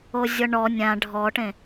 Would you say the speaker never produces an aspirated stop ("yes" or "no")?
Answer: yes